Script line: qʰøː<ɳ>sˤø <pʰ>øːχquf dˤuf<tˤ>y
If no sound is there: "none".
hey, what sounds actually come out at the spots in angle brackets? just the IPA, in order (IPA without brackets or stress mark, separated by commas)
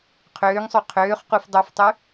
ŋ, qʰ, tˤ